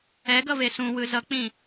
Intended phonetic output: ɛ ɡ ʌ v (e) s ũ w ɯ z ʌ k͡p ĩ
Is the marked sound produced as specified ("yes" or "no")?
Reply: yes